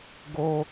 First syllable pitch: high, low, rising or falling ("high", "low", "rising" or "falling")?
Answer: high